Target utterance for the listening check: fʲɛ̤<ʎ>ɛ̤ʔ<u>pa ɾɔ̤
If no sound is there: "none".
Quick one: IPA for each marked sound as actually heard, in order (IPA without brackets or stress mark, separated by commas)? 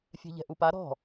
ʎ, u